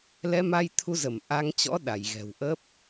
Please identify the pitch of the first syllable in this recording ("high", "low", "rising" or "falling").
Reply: rising